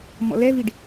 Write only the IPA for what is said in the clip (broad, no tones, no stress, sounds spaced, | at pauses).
m ɔ̰ l ɛ v i ɖ